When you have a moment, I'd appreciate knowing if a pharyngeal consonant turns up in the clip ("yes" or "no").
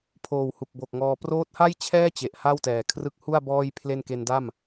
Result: no